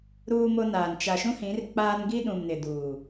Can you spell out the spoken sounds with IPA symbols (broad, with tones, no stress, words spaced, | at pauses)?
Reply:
ɾuː˦mo˦naː˨n t͡ʃa˨ʃũ˦hĩ˨˦r k͡pa˦n ɡi˦ɗũ˨m nɪ˨duː˨